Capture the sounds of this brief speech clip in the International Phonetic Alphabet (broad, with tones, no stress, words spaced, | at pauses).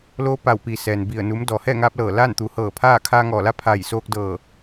loː˧˥ pa˧˩wpi˩ sɛː˩nbi˧˩ə̯ nu˩˧m dɔː˩hɛː˥˨ŋaː˧p̚lɤː˧˩ laː˥˨nt̪u˩˧ hɤː˧˩pʰaː˥˨ kʰaː˧ŋɔː˧˩la˧˥ pʰa˧˩j soː˧k̚dɤː˧˩